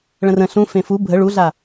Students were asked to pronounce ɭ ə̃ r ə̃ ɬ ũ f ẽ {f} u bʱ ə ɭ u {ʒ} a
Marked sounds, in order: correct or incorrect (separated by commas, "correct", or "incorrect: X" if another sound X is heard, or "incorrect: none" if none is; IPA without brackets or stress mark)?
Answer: correct, incorrect: ɮ